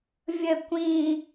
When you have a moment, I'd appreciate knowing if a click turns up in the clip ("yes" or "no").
no